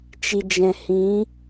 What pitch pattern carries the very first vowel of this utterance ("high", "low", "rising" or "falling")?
low